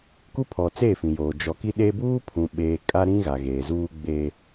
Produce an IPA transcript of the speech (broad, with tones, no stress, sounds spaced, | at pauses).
k u˦ pʰ ɔ˨ t͡s e˦˨ f ĩ˨ j oː˨ d͡ʒ ɔ˨ k i˦ ɗ e˦ b uː˦ pʰ ũ˨ ɓ eː˨ kʼ a˦ ɾ ĩ˦ ɣ a˨ ɣ eː˨ z uː˦ ɡ͡b e˦